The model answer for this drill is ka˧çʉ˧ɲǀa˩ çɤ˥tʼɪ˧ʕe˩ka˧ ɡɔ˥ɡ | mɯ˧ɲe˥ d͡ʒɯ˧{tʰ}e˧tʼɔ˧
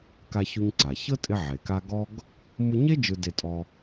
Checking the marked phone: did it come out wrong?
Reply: yes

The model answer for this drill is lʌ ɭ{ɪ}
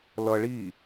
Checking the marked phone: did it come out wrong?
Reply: yes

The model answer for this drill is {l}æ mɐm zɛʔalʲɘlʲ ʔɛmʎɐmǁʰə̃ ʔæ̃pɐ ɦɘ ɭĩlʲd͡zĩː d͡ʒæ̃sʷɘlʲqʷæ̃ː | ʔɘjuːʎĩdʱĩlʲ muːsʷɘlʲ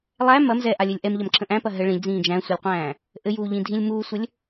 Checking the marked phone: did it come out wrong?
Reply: yes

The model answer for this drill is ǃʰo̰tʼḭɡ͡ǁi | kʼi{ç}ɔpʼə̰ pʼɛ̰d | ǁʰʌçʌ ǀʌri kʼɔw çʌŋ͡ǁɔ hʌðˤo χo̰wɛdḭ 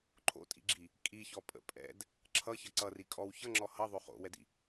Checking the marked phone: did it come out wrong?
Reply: no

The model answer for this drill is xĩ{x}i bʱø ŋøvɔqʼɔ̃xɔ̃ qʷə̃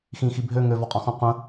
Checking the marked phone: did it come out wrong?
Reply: no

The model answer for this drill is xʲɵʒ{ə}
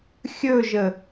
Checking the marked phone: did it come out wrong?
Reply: no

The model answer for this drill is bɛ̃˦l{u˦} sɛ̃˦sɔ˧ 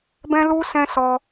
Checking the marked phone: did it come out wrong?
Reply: no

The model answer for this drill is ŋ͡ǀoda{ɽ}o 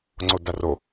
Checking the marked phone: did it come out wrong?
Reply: yes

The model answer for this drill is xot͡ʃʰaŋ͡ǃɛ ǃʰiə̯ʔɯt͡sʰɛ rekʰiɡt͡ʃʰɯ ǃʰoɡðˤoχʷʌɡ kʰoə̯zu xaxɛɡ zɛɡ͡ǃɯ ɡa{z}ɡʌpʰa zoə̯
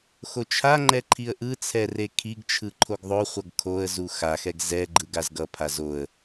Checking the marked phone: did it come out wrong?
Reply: no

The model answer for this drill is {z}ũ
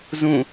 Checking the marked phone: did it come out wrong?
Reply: no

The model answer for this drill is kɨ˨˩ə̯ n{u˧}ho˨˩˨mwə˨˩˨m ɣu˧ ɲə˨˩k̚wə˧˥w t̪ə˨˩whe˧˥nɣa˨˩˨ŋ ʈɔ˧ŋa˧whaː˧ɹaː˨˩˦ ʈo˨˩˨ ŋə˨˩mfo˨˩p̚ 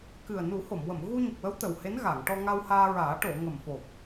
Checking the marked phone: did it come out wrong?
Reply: yes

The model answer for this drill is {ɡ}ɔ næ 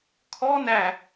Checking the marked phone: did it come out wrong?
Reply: yes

